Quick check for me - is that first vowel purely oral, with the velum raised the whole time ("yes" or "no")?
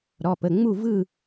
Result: yes